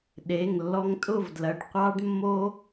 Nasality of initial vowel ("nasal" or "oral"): oral